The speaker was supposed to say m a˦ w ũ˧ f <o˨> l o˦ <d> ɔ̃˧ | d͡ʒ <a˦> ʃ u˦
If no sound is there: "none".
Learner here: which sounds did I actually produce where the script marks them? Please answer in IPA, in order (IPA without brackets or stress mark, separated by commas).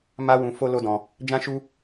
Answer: o˦, d, ã˦